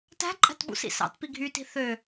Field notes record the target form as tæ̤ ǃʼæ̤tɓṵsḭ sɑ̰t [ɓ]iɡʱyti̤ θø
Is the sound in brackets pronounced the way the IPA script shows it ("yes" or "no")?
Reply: no